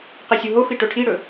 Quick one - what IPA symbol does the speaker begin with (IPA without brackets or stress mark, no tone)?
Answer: q